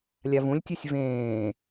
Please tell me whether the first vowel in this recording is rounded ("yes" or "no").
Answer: no